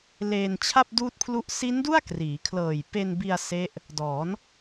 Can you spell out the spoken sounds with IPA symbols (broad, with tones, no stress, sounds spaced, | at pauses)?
l eː˧ n t͡ɕʰ a˥˩ p̚ d uː˥˩ t̚ pʰ l u˥˩ ʔ s i˦˥ n d u˥˩ a̯ k r iː˩˦ kʰ l ɤː˨˩ j p e˧ n b i˧ a̯ s e˦˥ ʔ | d ɔː˩˦ n